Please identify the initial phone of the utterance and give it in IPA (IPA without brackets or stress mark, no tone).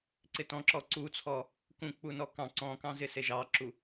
ǀ